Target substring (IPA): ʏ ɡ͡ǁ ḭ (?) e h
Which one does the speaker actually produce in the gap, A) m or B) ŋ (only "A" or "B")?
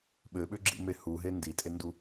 A